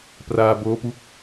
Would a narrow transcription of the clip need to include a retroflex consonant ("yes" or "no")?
no